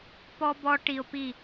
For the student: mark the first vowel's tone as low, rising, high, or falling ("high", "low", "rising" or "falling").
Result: high